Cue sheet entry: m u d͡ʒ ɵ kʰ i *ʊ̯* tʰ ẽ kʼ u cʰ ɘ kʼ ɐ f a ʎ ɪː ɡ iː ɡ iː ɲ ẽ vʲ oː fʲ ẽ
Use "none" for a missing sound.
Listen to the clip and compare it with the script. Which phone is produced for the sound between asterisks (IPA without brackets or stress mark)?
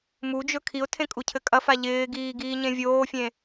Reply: ʊ̯